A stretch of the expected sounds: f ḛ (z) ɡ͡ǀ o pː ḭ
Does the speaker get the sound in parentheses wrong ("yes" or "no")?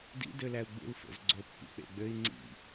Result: no